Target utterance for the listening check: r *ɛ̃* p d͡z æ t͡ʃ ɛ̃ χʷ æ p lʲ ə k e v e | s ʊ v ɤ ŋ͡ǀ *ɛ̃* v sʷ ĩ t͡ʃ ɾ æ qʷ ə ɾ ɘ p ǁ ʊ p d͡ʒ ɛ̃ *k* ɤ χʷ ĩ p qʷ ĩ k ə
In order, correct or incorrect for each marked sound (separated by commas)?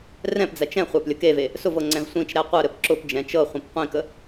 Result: correct, correct, incorrect